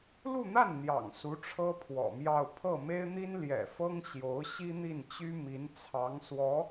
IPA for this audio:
lu˥˧n̪a˥˩n n̪jɑ̰˨˩ŋ su˧˥ ʈ͡ʂʰɤ˥pʰwɔ̰˨˩mjɑ˥˧ʊ̯ pʰɤ˥˩ me˥ɪ̯n̪i˥n ljɛ̰˨˩ fɤ˥ŋ ɕjo˧˥ʊ̯ ɕi˥n̪i˥˩nt͡ɕy˥ mi˧˥nt͡sʰɑ˧˥ŋswɔ˧˥

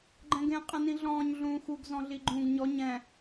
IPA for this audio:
ɡ͡ǃɛ̃ɡẽ qʼɛ̃nĩɮɔ̃ːɲ ɮũːxuɡ zɔ̃ɮiɡ͡ǃũːɡɲɔ ɲɛ̃

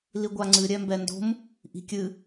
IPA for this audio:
liɡʷaŋ͡ǀɨ ɾʲɛmbɛndo̤m | ʔi̤kʲɨ

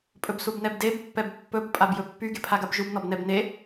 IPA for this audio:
pʼɵbsubnɛbdeb pːɛbpːɵb pʼabjɵpːy ɡepʰaɡabʒub nɔbnɛbne

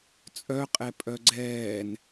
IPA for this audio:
t͡sʼœ qʼɛpʼœɡ͡ǀɛːn

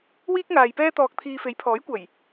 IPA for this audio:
wiː˥k̚ŋaː˨jpɛː˥ t̪ɔː˧k̚t̪ʰiː˧ fe˨˥jpʰɔː˨˥jkʷɐ˨˩j

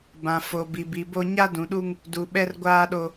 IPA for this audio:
bã˨fo˨ bi˨bi˨bo˦ ɲa˦dũ˨ɗu˦ŋ | du˨ɓɛ˦rɡʷaː˦ɗo˦

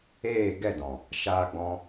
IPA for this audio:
eː˦˨ɡɛ˦˨dɔ̃˨ | ʃaː˦ɡ͡bɔ̃˦

